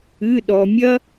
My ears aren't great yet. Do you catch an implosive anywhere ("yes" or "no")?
yes